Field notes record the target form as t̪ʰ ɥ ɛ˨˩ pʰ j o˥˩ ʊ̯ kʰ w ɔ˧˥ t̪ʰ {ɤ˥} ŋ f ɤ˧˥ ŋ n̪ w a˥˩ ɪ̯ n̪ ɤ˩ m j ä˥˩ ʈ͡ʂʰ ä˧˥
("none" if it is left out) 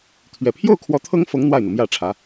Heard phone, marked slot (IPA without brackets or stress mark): ɤ˥